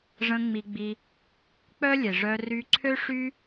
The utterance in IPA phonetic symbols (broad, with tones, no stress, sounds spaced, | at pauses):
ʐ ə̃˧ ŋ͡m i˧ ɡ͡b i˧ | k͡p œ˦ lʲ e˨ ʐ œ˧ r y˧ ǀʰ ø˦ ʂ y˦